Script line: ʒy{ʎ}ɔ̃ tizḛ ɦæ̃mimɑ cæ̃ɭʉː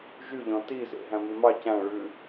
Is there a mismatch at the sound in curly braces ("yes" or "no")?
no